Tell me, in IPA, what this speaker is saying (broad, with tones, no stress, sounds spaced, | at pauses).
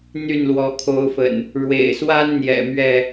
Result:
n̪ y˥˨ n l w ɔ˨˦ kʰ o˨˦ ʊ̯ f ə̰˨˩ n | ɻ w ḛ˨˩ ɪ̯ s w a˦ n n̪ j ɛ̰˨˩ m ɥ ɛ˥˨